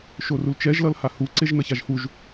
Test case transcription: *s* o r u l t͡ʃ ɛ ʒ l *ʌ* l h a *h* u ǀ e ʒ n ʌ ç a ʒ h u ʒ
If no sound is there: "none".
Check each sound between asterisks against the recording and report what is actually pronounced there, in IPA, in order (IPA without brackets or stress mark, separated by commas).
ʃ, ʌ, h